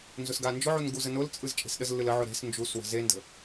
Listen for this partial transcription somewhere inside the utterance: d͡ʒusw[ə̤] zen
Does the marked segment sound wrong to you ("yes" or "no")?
no